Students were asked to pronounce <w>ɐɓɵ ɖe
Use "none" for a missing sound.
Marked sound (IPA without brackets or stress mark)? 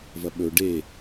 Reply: v